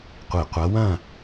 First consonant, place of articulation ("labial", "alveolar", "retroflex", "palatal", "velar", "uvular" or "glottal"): uvular